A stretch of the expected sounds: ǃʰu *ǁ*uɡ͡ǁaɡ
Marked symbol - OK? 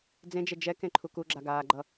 no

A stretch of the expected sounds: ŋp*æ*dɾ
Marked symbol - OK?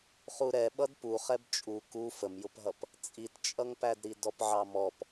yes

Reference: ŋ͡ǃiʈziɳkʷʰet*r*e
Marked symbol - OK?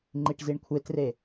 yes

